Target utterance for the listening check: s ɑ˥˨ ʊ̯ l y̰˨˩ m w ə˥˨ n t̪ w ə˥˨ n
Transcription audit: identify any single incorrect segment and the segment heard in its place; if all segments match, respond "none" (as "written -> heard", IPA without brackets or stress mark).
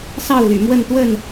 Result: none